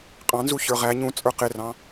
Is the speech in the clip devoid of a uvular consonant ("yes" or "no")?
no